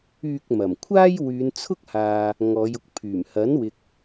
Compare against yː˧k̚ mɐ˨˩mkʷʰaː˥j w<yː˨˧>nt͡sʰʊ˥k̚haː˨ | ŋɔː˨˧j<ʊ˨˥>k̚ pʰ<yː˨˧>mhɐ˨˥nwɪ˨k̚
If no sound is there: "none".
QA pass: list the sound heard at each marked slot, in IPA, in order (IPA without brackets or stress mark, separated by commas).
yː˨˧, ʊ˧, yː˨˩